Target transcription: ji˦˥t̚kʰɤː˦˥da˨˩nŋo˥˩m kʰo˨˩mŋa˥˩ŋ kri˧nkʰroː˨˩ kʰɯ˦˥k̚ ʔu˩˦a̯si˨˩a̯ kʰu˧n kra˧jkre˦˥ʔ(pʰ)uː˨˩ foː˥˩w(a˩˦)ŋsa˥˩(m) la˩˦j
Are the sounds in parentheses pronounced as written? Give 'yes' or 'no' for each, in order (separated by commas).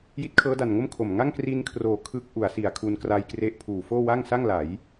yes, no, no